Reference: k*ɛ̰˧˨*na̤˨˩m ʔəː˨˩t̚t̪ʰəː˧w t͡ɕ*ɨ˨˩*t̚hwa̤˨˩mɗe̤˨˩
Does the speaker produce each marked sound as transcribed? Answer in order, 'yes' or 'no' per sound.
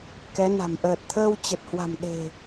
no, no

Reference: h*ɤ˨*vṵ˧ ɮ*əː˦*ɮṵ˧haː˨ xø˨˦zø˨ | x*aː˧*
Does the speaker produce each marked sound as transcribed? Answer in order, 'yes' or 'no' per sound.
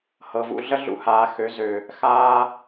yes, no, yes

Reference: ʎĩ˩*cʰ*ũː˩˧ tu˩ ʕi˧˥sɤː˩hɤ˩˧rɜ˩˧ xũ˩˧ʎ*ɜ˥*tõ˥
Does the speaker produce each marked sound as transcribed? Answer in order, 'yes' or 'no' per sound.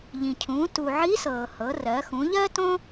yes, yes

